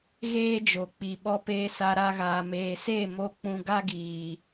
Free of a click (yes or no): yes